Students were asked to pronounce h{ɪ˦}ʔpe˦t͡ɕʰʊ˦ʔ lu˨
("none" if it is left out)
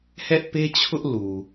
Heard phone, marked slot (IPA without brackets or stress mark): ɛ˦